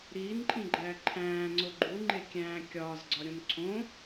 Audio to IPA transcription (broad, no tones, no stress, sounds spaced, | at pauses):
ɾ iː n ǃʼ ĩ ɡ͡ǃ æː ǃʰ æ̃ː ŋ͡ǀ o ɡ͡ǃ u ŋ͡ǃ e kʲ æ̃ː kʲ ɒː z ɡ͡ǀ ɒ ɾʲ õ n ǀʰ õ